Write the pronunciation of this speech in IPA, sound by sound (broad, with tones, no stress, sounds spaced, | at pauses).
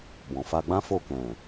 b ɔ̃˨ f a˧ ɡ͡b ã˦ f o˦˨ k ɛ̃˨